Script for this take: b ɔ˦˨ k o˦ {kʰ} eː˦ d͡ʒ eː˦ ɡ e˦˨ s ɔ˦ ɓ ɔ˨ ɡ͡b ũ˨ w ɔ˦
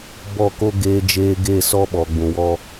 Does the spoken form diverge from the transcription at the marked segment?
yes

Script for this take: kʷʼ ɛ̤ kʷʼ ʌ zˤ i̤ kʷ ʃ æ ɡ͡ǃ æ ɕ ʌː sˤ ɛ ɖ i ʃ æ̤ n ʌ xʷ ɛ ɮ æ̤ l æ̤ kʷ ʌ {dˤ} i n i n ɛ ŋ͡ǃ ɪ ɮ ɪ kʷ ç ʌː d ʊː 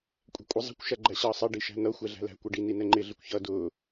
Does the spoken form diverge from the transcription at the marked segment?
yes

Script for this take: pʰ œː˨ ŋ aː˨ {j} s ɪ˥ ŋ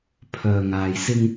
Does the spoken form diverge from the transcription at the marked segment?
no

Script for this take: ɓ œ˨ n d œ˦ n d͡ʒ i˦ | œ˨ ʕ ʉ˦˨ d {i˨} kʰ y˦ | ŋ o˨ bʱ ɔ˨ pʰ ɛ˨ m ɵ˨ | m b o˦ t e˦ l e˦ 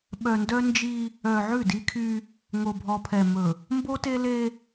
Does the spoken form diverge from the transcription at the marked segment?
yes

